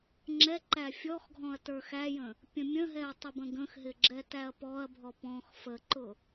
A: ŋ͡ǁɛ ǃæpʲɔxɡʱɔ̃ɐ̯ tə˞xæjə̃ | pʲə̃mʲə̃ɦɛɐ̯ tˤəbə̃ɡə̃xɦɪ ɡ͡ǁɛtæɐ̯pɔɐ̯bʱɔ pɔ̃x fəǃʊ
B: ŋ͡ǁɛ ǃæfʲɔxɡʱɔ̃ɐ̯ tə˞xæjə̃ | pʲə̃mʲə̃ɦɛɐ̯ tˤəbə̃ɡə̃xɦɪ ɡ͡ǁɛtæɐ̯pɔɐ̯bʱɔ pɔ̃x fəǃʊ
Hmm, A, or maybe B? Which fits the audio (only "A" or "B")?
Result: B